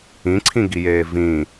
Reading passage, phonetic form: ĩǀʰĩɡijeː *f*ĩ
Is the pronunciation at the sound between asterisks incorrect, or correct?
incorrect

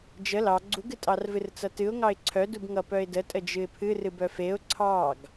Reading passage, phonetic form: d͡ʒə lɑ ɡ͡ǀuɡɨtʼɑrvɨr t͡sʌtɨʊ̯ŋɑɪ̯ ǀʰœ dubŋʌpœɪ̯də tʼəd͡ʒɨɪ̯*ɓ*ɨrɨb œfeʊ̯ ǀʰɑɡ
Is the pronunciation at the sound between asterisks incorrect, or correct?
incorrect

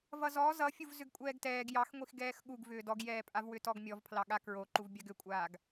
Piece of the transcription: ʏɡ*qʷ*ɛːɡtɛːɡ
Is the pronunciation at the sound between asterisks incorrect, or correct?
incorrect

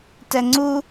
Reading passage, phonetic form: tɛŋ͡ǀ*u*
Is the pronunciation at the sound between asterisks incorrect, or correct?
correct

